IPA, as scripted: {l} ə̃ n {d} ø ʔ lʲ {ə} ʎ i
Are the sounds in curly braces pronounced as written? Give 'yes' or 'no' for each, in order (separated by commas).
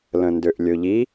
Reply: yes, yes, no